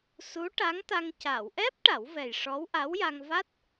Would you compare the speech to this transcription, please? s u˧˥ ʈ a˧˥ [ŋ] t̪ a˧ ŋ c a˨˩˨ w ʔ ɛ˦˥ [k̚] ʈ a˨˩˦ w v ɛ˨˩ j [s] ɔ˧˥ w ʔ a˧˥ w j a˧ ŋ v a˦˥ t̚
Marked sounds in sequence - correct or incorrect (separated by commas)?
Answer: correct, incorrect, incorrect